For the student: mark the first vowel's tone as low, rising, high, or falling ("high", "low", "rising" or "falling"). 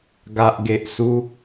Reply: low